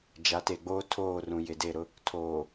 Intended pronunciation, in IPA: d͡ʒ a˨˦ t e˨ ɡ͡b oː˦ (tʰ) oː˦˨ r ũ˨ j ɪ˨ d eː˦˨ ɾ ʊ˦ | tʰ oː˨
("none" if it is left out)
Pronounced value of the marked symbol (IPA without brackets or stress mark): tʰ